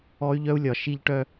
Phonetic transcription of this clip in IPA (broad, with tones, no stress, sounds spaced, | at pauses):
ɔ˦ y̯ ʎ œ˦ u̯ lʲ ɒ˨ ʃ i˧ ʎ ʈ œ˧